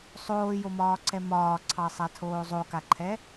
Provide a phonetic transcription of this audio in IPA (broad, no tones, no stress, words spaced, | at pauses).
sˤoːjomɒːǀɛ mɒːǀʰɑsˤatʰoː zˤokaǃʰɛ